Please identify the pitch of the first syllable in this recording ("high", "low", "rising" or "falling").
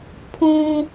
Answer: high